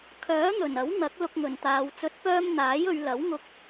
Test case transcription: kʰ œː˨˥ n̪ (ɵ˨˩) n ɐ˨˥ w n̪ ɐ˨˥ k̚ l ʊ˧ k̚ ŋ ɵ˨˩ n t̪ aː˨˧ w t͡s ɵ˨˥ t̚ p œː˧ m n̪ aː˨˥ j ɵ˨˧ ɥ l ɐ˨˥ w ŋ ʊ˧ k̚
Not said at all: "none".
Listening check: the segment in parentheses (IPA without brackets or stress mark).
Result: ɵ˨˩